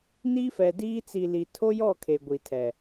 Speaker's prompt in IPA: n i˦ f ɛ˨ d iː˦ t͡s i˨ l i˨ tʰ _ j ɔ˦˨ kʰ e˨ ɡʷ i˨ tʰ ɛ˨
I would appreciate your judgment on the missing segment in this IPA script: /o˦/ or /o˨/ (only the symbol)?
o˦